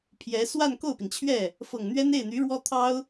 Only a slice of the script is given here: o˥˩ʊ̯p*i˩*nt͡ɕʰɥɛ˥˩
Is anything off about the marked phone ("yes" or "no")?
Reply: no